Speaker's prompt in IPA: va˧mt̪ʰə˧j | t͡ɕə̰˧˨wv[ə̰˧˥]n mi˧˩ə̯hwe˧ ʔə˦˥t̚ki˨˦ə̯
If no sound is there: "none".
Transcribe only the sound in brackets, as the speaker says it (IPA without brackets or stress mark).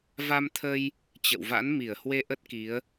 a̰˧˥